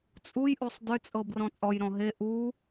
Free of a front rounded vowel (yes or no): no